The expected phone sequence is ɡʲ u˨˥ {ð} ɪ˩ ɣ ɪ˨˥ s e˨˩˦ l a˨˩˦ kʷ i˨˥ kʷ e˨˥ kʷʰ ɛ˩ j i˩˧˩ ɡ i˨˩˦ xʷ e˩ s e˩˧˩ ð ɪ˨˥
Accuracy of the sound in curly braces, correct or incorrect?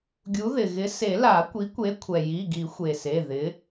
correct